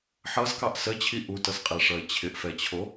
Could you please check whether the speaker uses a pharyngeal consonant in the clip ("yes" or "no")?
yes